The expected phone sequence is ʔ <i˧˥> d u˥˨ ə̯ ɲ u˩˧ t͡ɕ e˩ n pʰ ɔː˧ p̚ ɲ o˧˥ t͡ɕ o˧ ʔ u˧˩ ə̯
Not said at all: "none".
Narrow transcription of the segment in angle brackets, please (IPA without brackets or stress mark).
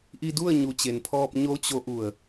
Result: i˧